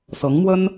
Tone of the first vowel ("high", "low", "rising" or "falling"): rising